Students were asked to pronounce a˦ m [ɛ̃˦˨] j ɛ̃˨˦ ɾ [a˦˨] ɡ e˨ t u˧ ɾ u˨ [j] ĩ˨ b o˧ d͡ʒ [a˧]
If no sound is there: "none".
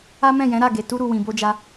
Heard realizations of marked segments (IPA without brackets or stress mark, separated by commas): ɛ̃˦˨, a˦˨, w, a˧